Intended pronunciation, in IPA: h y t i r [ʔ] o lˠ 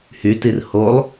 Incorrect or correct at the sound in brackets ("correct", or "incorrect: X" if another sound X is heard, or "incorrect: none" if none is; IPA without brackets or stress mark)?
incorrect: h